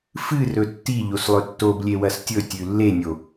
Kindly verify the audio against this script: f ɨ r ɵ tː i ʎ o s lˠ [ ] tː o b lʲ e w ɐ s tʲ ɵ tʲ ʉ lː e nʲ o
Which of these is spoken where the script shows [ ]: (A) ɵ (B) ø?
A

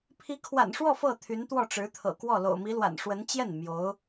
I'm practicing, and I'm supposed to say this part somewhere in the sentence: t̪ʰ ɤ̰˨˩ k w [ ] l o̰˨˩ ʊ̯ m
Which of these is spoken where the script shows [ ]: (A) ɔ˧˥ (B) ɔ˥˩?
B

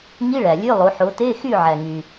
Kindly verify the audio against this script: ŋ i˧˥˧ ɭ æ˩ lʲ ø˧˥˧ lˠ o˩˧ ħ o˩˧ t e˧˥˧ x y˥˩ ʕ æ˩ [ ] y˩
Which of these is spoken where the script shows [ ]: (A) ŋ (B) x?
A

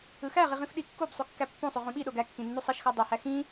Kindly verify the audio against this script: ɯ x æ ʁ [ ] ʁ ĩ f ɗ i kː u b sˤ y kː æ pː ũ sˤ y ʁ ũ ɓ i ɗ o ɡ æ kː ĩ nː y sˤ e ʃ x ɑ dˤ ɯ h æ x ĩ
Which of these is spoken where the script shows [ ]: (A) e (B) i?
B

